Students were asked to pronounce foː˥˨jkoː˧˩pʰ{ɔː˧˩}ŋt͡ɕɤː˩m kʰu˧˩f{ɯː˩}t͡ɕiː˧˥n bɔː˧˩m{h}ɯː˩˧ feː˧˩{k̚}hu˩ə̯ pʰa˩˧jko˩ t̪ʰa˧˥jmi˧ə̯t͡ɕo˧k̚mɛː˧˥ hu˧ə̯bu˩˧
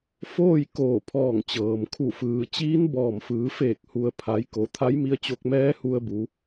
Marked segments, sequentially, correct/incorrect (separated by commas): correct, correct, incorrect, correct